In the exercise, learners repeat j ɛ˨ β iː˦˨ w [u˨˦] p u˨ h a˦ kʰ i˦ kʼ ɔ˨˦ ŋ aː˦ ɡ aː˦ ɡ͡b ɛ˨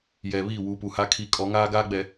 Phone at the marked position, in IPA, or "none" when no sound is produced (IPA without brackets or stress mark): u˨˦